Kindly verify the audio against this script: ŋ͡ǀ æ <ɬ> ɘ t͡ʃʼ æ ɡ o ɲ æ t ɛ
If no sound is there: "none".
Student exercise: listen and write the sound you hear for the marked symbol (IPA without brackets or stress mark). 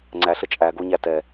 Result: ɬ